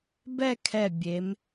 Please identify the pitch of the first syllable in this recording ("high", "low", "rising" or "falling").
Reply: falling